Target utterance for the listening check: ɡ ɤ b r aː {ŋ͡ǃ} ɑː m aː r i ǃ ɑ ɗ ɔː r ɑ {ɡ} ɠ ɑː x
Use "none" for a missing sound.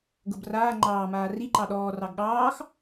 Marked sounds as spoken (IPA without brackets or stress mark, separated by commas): ŋ͡ǃ, ɡ